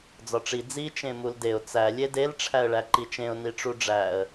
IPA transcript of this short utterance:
d͡z ɒ ʈ͡ʂ i d͡z i t͡ʃ ẽ m u l d e ʊ̯ t͡s æ lʲ e d e l ʈ͡ʂʰ æ ə̯ ɭ æ ǃ i t͡ʃ ẽ ʊ̯ n i ʈ͡ʂ u ɖ͡ʐ æ ə̯

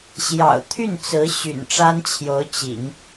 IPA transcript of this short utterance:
ɕ j ɑ̰˨˩ ʊ̯ t̪ʰ y˥˩ n t͡s ɹ̩˧˥ ɕ y̰˨˩ n ʈ͡ʂ a˥ n t͡ɕʰ j o˧˥ ʊ̯ t͡ɕ ḭ˨˩˦ ŋ

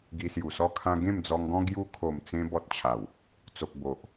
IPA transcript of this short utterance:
ɡ i˧ s j u˨˩ s ɔ˥˧ kʰ ã˦ ɡ ẽ˥˧ m d͡z ɔ˧ ŋ ɡ ɔ̃˦ ɡ j u˧ kʰ o˨˩ m t͡s ẽ˧ b ɔ˦ t̚ t͡ɕʰ a˨˩ w | t͡s o˨ k̚ b o˨ ʔ

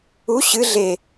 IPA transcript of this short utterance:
u ɕ ɨ ɮ e

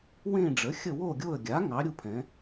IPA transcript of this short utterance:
w ẽ˦˨ ɖ͡ʐ ə˩˥ xʲ ə˦˨ w o˦˨ ɡʲ o˦˨ ə̯ ɡʲ a˩˥ ŋ ɑ˩˥ ɾʲ u˦˨ pʰ ɛ̃˩˥

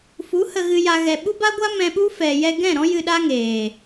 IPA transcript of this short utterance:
f u˨˦ h ə˨ ɣ ɨ˨ j a˨ ɣ ɛ˨ ɓ u˦ b a˦ ɡʷ a˦ m ɛ̃˧ ɓ u˦ f ɛ˨ j ɛ˧ ɡ ɛ̃˦˨ ɾ ɔ̃˦ j ɨ˧ ɗ a˦ ŋ eː˨

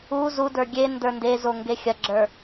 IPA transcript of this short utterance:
u z u d ə˞ ɡʲ e n d ə˞ n d e z o ŋ ɡ e xʲ ɐ ɡ͡ǁ ə˞

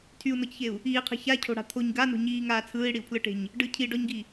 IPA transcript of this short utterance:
tʰ y u̯ n ɔ c ç e u̯ | iː qʰ e̤ ç a cʰ o̤ ɽ a̤ t̪ʰ o ɲ ɡ a n o̤ ɲ iː ŋ aː t͡sʰ ɯː i̯ ɽ i u̯ pʰ l ɯ ʈ e̤ ɲ | ɖ ɯ cʰ i ɖ ɔ ɲ ɡ i

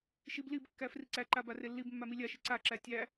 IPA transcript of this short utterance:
ʃ i b l i b kː æ f r i ǀ æ ǃ a b a r e lː i b mː a m i lʲ a ʃ i ǀ a ǁ æ tʲ æ

